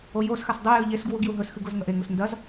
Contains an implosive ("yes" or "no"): no